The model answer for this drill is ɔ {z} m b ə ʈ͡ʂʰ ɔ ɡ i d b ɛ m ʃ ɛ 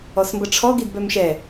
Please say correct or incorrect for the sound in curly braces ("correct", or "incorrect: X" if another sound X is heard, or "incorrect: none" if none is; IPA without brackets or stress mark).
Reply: incorrect: s